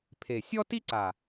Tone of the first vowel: low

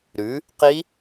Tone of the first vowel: rising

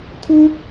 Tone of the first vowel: high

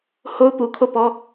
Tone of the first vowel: high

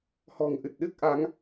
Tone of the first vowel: low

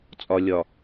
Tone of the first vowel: low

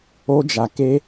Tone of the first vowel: high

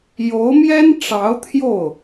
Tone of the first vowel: rising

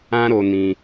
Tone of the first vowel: high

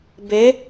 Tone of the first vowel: rising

